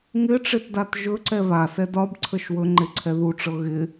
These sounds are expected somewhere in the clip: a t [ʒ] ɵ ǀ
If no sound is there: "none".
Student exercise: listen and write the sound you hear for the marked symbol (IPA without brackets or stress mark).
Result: ʒ